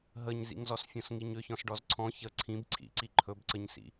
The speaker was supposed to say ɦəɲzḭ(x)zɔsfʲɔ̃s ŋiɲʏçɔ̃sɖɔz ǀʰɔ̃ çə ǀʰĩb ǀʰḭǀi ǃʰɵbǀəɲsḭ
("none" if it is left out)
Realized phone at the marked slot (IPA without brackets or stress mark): ŋ